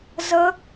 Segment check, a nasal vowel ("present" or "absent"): absent